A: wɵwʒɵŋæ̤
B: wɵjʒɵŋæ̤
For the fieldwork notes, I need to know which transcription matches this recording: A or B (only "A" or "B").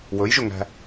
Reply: B